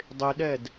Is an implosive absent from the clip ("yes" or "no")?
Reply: no